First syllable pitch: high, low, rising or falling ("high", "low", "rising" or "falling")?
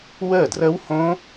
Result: falling